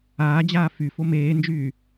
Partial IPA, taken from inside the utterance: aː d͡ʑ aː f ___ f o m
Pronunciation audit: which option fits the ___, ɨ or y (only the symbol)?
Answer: y